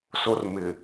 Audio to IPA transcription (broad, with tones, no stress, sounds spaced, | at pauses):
s o˦ r m ɪ˨